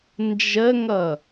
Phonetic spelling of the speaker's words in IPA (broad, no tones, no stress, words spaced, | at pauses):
nd͡ʒəŋʌ